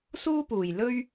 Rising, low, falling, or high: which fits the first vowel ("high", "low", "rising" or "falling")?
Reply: high